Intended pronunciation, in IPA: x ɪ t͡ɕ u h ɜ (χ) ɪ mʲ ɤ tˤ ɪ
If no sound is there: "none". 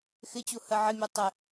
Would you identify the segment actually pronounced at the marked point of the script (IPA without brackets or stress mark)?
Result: ʕ